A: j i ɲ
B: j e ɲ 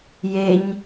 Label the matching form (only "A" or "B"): B